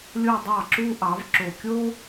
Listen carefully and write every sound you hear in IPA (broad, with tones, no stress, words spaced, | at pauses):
lʲo˥˧dˤɑ˥˩ǁu˥ ʔɑ˩˥v ǁo˨˩kʲo˥